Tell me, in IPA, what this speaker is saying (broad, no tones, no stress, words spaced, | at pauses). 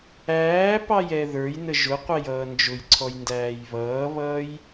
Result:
æː pɑjɛðə˞jnə ʒʊqʷɛj ʌːnd͡ʒʊjǀʰɔj ndæːjβʌːβʌːj